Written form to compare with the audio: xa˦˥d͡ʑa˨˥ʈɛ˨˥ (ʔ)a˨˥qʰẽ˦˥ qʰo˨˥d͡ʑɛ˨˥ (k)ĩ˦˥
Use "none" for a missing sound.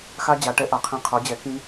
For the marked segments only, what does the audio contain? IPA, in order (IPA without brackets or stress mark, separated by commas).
ʔ, k